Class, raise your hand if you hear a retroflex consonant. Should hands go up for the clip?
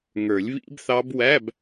no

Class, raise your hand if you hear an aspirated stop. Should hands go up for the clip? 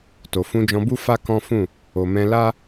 no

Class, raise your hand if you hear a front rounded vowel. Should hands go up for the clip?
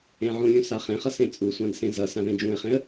no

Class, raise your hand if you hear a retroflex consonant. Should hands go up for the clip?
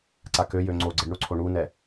yes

